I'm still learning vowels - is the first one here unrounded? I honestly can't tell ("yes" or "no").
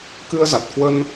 yes